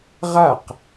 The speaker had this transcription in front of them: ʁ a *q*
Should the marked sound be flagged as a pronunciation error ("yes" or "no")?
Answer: no